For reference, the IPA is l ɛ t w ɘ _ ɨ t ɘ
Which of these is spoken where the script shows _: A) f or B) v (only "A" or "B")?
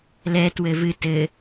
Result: B